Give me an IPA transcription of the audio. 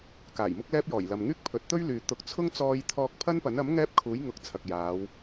k aː˨˩ j m ʊ˥ k̚ l ɛː˥ p̚ j ɔː˨˩ j l ɐ˨ m ŋ yː˥ k̚ pʰ ɵ˨˥ t̚ t̪ ɵ˥ ɥ l yː˨ t̪ ʊ˨ k̚ t͡sʰ ʊ˥ ŋ t͡s ɔː˧ j t̪ʰ ɔː˧ k̚ pʰ ɐ˥ n p ɐ˨˥ n ɐ˨˥ m ŋ ɛː˥ p̚ kʰ uː˨˥ j ŋ ʊ˨˥ k̚ t͡sʰ ɐ˨ k̚ j aː˨˧ w

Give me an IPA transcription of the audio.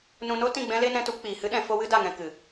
n ũ˧ n o˦ t ĩ˦˨ ɡ͡b ɛ̃˦ l e˦ n ɛ̃˧ t u˧ p k͡p iː˨ h ɨ˦ ɗ ɛ̃˨˦ f o˦ w ɨ˦ d a˦˨ ŋ ɛ̃˧ k ɨ˨

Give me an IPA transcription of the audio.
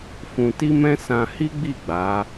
f ũ˧ t i˦ m ɛ̃˦ s ã˧ h i˦ ɡ͡b i˦˨ ɡ͡b a˨˦

